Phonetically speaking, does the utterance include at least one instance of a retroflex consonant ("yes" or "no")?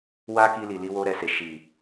no